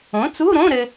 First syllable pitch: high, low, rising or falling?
rising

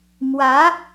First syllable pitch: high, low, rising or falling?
rising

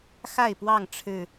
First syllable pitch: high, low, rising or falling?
falling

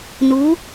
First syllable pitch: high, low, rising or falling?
rising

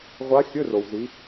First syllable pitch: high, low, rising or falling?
rising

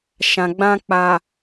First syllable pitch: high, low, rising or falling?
low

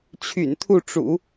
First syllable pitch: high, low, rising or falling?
low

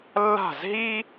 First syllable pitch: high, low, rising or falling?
falling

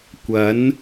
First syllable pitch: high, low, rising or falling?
rising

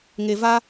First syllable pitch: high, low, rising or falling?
low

